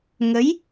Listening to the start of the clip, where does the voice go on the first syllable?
rising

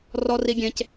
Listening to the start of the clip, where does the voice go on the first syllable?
high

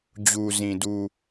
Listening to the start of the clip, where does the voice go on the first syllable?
low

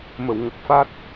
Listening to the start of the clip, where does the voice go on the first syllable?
low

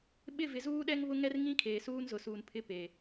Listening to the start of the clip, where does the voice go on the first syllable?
falling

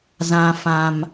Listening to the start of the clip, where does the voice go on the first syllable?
high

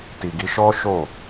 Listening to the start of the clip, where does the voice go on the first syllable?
low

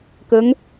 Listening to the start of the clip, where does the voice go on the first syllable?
rising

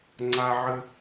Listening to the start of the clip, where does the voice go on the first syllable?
high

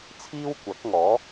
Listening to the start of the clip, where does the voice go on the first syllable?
high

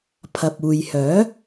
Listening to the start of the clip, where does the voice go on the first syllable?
low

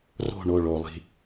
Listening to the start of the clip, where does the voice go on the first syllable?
falling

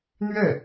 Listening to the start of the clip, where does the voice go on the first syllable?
falling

